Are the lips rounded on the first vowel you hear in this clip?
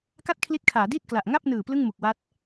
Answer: no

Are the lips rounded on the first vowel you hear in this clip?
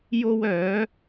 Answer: yes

